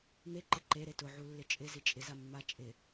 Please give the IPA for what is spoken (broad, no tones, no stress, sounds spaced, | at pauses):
m e ǃ ɪ ǃ e ɾ e t ʊ ʕ u lː ɪ t͡ʃʼ ɪ z i t͡ʃʼ ɪ z a mː a t͡ʃʼ ɪ